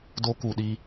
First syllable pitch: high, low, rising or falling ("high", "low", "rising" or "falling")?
high